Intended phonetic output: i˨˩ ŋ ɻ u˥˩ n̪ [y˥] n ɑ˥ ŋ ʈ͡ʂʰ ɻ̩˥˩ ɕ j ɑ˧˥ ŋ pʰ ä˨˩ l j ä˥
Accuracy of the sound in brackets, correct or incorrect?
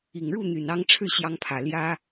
incorrect